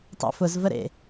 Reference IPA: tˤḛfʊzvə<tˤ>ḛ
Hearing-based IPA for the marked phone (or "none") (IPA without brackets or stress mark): ɾ